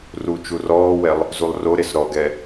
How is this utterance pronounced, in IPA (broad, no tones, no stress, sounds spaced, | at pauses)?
r u t͡ʃ u r ɔː w ɛ lˠ | z u lˠ r o ɾ e s ɾ ɔ ɡ ɛ